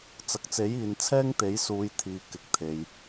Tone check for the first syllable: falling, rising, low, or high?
low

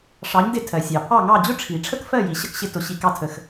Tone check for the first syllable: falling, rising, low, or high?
rising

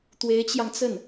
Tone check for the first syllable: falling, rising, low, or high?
rising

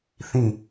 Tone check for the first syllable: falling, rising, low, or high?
falling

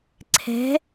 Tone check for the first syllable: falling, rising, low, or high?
rising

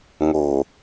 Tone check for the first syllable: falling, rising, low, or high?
low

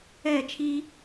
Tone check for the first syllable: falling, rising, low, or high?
falling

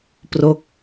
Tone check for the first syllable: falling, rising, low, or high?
falling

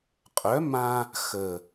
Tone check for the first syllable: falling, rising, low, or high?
rising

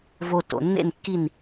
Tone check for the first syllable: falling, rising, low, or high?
low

